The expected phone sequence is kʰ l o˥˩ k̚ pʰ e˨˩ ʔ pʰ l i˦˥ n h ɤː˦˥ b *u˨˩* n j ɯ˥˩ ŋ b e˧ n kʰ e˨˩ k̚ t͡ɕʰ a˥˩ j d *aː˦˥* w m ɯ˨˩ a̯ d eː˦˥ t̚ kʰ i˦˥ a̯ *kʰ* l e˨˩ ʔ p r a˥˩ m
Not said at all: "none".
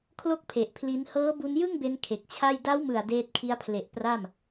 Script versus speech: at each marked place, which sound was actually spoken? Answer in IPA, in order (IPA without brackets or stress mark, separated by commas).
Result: u˧, a˦˥, pʰ